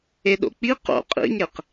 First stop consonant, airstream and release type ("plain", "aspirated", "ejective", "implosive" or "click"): implosive